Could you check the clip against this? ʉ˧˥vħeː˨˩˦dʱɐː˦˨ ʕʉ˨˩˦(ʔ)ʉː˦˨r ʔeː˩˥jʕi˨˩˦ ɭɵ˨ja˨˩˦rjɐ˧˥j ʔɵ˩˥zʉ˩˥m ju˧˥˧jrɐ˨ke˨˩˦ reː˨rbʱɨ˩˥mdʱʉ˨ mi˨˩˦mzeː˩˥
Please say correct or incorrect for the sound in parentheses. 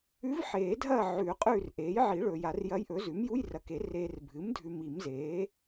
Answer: incorrect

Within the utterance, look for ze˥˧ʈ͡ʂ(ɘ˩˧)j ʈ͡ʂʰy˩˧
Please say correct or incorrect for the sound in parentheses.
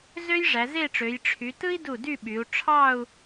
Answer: incorrect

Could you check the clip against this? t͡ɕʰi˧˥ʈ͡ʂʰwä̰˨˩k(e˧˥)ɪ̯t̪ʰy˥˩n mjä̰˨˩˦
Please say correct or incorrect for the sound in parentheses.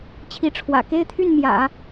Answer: incorrect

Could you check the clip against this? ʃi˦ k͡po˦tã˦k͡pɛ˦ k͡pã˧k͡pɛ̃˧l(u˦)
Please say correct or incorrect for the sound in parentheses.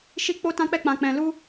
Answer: correct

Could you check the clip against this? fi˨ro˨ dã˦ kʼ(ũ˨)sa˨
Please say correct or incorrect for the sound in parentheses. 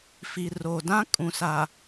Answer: correct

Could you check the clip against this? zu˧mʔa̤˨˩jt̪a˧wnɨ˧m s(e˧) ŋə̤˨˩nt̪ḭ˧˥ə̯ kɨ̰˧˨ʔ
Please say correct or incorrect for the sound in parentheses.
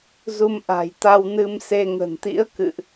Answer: correct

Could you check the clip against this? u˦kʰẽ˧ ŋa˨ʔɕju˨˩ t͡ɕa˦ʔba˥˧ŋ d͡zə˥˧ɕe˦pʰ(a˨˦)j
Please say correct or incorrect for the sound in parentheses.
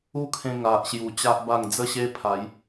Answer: correct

